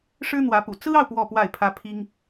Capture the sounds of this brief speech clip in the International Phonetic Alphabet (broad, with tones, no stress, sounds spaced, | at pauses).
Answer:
ʂ ɻ̩˥ n̪ w ä˧˥ p ṵ˨˩ t͡s ɹ̩˥ ɑ˨ ʊ̯ p w ɔ˥˧ p w a˥˩ ɪ̯ pʰ ä˥ pʰ i˥ ŋ